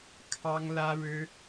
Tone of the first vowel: high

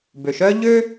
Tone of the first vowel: low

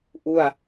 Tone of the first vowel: falling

